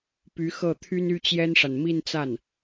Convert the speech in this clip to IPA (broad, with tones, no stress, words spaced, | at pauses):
py˧˥ xɤ˥˩t̪ʰy˥n y˥t͡ɕjɛ˥nʂa˨n mi˥˧nt͡sa˥˩n